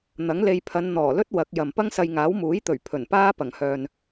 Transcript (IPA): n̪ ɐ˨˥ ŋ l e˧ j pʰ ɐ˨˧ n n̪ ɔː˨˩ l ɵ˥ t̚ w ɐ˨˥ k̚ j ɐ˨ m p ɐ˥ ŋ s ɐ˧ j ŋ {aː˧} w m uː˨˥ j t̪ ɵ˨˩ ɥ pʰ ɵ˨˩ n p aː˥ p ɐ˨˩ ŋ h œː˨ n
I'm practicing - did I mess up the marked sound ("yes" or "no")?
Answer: yes